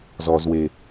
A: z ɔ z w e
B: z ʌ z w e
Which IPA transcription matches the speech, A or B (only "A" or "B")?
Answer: A